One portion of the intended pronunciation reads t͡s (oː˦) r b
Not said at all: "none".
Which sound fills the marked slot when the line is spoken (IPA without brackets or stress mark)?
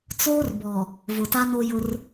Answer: oː˦